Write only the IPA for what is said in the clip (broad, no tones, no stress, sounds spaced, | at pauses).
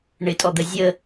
ɳ ɪ tʼ ɔ d̪ ə zʲ ə